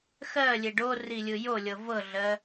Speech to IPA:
xɜlʲe ɖorilʲɯ jolʲɤ vɤɮɜ

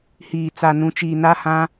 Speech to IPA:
hiː˨t͡sa˨nũ˨t͡ʃiː˨ na˦hã˦

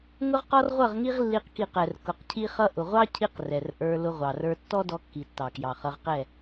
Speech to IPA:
ŋʊ˦ʁqɔ˦rʁʷʌ˦˨ʁŋi˦ʁ lːi˦qki˦˨q ɛ˨rkʊ˨qcʰi˦ χʌ˧ʔʊ˨ʁʷɑ˦cʰi˧q rɛ˨rʔə˞˧ lʊ˧ʁʷɑ˨rə˞˧ tːɔ˦dɔ˧kːi˨ tːɑ˨kjɑ˨χʌ˧ʁqɛ˦˨

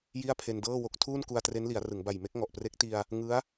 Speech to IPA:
ji˥˩a̯pʰe˧ndɤː˥˩wo˥˩k̚ tʰuː˥˩nku˧a̯tre˦˥nli˩˦a̯ rɯ˩˦ŋba˨˩jme˦˥k̚ ŋɔ˨˩ʔpre˦˥k̚ti˧a̯ | ŋɯ˦˥a̯

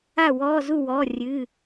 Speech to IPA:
a˥˨wɔː˧˥˧zu˥˨ wɔ˧˥˧rʲɨ˧˥˧

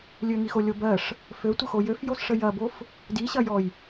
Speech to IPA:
lʲøŋixolʲo bɜʂ | føtʷəxo jøfjosʂə jɐbof | diɕɐjɔj

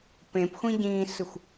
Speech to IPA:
pẽpxʷĩ ɟĩːsɯxʷ

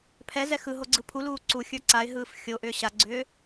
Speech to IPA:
pʰɛ zɛxɯɦo ɡ͡ǀɯpʰuluː ǀu xʲə˞ǀaɪ̯ɦɯːf xʲo ʔʏːɕaɡ͡ǀʏː

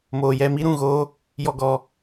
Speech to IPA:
moː˧jɛ˧mi˦ ɾũ˦˨ɣoː˦ | jɔ˧ɡɔ˧

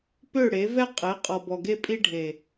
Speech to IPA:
pø˦˨ɽe˨˦ vɛ˦qʼe˨˦qʼɔ˨bɔ˨ ɡe˦pʼi˦ɖʱe˨

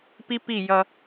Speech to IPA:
pi˦pi˦˨jʌ˦

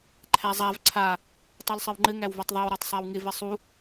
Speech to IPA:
ǃʰæzˤav ǀʰa | tˤolsˤɘwŋ͡ǃɘ ŋæwvotˤðˤæw ɾætˤsˤæwŋɪ vɘsˤu

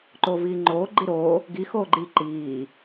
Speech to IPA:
ǃoːviːŋ͡ǃoː ɡ͡ǃiɾoː | ɡi xoːɡ͡ǃi ǃiː

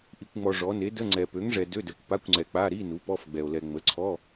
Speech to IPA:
ʔi˨kʷŋ͡mɔ˨ ʐɔ˩˥ ne˩˥də˧˥˧ ŋ͡ǀɛ˨ pø˩˥ŋʐɛ˨ dø˧˥˧dɛ˨kʷ pa˧˥˧kʷŋ͡ǀɛ˨ k͡pa˧˥˧ɾi˧˥˧ nu˩˥pɔ˧˥˧fɡ͡bɛ˨o̯ lɛ˨ŋ͡mə˩˥ǀʰɔ˧˥˧

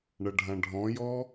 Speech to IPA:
ɳɐɖʱãɖʱɔ̃jɔ

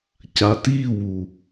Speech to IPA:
catiwu

